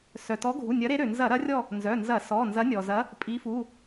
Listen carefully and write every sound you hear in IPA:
s œ˩ t ɔ˨˦ ɡʱ u˩˧˩ nʲ ɐ˨˦ ɾ e˨˦ ɾ ø˩ n z ɐ˧˩˧ ɾ ɐ˨˦ rʲ ɔ˦˨ | n z œ˩˧˩ n z ɐ˧˩˧ s ɔ˩˧˩ n z ɐ˨˦ nʲ ɔ˩ z ɐ˨˦ | pʼ i˨˦ f u˩˧˩

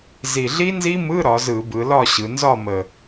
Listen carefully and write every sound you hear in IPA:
z i˨˩ ɮ i˦˥ n z i˦˥ m ɯ˧˥˧ ɾ ɒ˩˧ z ɯ˧˩˧ b ɯ˩˧ l ɒ˥˨ ɕ ɯ˩˧ n z ɒ˥˨ m ə˨˩

